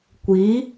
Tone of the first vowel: rising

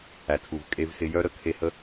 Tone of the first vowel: low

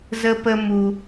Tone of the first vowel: high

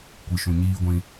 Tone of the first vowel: low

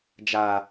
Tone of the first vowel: low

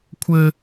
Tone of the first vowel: high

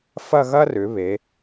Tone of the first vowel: falling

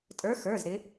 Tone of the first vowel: rising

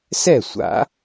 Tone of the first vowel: falling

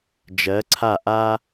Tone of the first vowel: rising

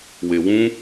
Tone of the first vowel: low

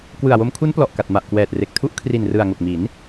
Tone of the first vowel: low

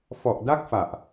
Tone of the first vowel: low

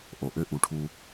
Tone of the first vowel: low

